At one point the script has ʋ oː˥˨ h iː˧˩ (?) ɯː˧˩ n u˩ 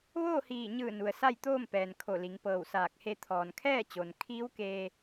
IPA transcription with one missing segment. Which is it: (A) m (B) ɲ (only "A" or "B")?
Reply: B